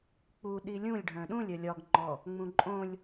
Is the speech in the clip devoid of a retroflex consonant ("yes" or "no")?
no